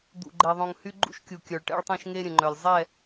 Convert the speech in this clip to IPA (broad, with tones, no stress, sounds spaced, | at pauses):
d̪ ṵ˨ ɡ͡ǃ ɛ˨ ðˤ õ˨ ŋ h y˦ ɡ͡ǃ ṵ˦ ʃ kʲ u˨ kʲ œ˨ ɭ ʈ ɛ̰˦ ɭ tˤ ɛ̃˦ ʃ ŋ e˦ ɾʲ ə̃˨ ŋ͡ǃ œ˨ lʲ zˤ ɛ˦˨